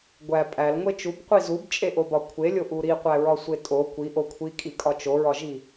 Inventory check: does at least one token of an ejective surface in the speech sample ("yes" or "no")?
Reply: yes